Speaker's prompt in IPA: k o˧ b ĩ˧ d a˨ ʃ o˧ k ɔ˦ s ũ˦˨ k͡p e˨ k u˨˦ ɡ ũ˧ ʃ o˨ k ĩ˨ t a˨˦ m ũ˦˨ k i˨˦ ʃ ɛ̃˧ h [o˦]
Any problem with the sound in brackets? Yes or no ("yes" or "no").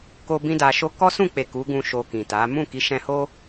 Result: no